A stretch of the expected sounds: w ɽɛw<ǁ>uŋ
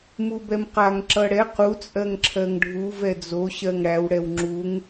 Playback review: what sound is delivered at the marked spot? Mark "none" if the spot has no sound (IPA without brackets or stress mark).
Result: ŋ͡ǁ